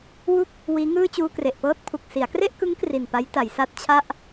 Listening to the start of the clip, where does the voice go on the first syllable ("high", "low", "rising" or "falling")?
falling